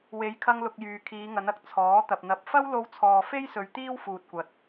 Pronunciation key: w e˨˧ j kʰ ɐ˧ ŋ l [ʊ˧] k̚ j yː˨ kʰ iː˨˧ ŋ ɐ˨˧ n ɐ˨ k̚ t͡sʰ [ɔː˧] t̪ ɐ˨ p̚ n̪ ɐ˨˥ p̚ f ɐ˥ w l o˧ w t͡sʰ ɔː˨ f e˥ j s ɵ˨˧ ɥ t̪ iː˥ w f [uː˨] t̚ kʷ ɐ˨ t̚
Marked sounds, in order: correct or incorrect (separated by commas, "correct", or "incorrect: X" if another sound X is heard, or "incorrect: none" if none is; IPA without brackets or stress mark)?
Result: incorrect: ʊ˨, incorrect: ɔː˨˥, correct